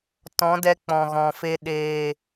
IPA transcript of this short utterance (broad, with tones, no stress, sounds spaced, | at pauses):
t ɔ̃˨˦ d ɛ˧ k͡p ɔ̃˨ ɣ ɔ̃˨ f e˧ ɗ eː˨